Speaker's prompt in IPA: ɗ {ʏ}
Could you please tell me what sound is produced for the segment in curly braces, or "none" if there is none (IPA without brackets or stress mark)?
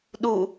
u